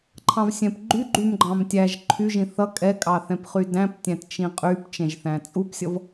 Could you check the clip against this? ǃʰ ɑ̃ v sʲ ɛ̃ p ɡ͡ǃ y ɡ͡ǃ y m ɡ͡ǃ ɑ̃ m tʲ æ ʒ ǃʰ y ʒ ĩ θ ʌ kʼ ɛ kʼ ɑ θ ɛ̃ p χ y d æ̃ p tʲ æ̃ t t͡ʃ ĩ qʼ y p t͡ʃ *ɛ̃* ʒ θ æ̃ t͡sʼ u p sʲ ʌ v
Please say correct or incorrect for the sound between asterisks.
correct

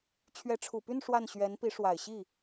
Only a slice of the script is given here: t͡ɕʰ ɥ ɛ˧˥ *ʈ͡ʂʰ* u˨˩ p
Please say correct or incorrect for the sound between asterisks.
correct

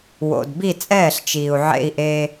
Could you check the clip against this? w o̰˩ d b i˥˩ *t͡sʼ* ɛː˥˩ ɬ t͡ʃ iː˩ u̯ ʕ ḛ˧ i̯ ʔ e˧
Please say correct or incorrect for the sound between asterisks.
correct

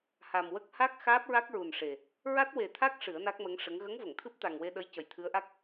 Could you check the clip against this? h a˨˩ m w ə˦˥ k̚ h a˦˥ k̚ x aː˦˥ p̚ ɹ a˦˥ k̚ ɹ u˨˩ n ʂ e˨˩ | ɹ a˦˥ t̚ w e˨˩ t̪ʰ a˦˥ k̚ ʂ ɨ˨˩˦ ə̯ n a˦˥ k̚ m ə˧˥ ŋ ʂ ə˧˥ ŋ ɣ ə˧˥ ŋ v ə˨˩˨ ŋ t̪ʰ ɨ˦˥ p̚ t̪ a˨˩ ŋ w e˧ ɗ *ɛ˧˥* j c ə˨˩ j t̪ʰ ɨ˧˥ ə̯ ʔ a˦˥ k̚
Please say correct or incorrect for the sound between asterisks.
incorrect: ə˧˥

